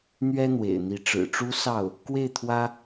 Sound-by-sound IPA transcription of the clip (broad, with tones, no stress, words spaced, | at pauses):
n̪ɥɛ˥n̪wḛ˨˩ɪ̯n̪i˧˥ ʈ͡ʂɻ̩˨˩ʈ͡ʂu˥ sɑ˥˩ʊ̯ | kwe˥˩ɪ̯t̪ʰwä˥